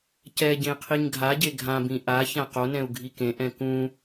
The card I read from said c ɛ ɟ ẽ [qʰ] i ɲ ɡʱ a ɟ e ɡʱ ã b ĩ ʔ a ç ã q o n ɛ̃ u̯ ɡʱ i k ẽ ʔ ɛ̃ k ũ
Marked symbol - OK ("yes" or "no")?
yes